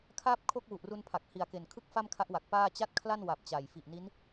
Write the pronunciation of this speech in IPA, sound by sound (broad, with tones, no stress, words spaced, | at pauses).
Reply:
kʰaː˥˩p̚kʰo˥˩k̚ wu˨˩ʔru˧n pʰa˨˩k̚ hi˨˩a̯ke˨˩nkʰɯ˥˩k̚ fa˥˩mkʰa˦˥ʔwa˨˩k̚ paː˥˩ t͡ɕa˥˩t̚kʰla˥˩nwa˨˩p̚ t͡ɕa˨˩j fi˨˩ʔni˦˥n